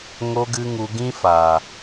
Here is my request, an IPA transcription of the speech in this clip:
ŋ o˧ ɡ ɨ˧ ŋ u˧ ɡ ĩ˦ f aː˨

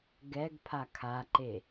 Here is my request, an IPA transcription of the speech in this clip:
ɡ ɛ ɡ pʰ a kʰ a ǃ e

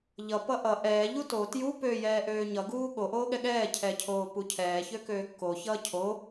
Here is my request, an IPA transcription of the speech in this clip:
ʎ ʌ p ʌ ʔ ʌ ʔ ɛː ʎ u t o t j u p ø j ɛː ʔ øː ɲ ʌ ɡ uː ɠ o ʔ oː ɠ ɛ ɠ ɛː cʰ ɛ cʰ oː p u cʰ ɛː ç ø k øː kː o ç ʌː cʰ o

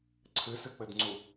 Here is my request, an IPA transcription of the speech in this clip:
ǀʰ ɨ s ɨ k͡p ɘ d ŋ͡ǀ u

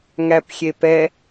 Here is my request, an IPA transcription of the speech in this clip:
ŋ æ p xʲ e p ɛ

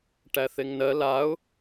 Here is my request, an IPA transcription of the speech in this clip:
ʈ æ θ e ŋ n ɜ l a ʊ̯

